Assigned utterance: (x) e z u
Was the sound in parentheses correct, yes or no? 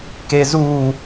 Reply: no